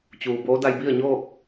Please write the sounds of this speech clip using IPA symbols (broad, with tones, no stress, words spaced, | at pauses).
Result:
t͡ɕuː˩boː˧˥ da˧jbi˥˨ə̯ɲoː˥˨k̚